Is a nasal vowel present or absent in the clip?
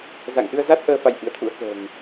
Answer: absent